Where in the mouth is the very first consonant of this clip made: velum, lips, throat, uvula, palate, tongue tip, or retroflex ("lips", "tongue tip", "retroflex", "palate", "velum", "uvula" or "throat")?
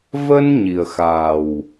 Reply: lips